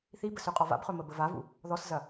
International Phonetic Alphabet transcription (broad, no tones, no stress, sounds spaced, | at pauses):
θ i b ə s ø qʼ ɔ v a̰ b χ ɵ m ə b ə v a v ṵ | ð ɔ s z ɐ